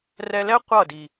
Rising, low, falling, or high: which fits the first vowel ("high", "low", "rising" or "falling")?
low